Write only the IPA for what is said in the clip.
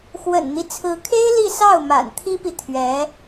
xwə̰˨˩nn̪i˦t͡sʰɹ̩˧˥kʰe˥ɪ̯ li˥˧sɑ˥˩ʊ̯ ma̰˨˩nt̪ʰi˥pi˨ t̪ʰɥɛ˧˥

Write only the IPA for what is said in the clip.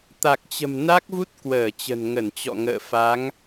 t̪a˨˩k̚t͡ɕə̤˨˩m na˦˥k̚vu˦˥t̚ kwəː˧˩ t͡ɕə̤˨˩nŋə˧˩nt͡ɕɔ̰˧˨ŋə̰ː˧˨ fa˨˦ŋ

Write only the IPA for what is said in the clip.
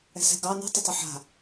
ɛ̤sɛ̤ɡɑ nɛ̤tˤɪtˤɪ ħa̤

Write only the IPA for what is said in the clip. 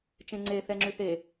t͡ʃẽŋ͡ǀe θɛŋ͡ǁyθe

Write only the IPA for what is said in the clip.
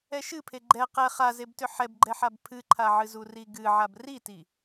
ɛʃɨpʰe ɡ͡ǃɛ qɛ χazebtʏ ħɛbɡ͡ǃɛħab pʰɨǃʰaʕɨzu riɡɨ ʕabriti

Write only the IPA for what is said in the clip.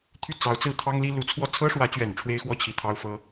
t̪ʰy˥˩t͡sɑ˧˥ʊ̯t͡sɹ̩˥˩ t̪ʰɑ˥ŋ li˥ lu˧˥t͡sʰwɔ˥˩ t͡sʰɤ˥ʂwä˧˥t͡ɕɥɛ˨˩n ʈ͡ʂʰwe˥ɪ̯xwɔ˥t͡ɕʰi˧˥ t̪ʰɑ˥ʊ̯ fɤ˥

